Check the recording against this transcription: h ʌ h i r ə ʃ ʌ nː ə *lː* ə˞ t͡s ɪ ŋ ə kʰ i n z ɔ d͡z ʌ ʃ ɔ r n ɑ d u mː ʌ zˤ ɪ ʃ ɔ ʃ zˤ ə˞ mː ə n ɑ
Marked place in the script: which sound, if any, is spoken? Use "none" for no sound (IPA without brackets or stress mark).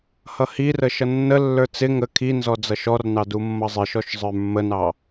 lː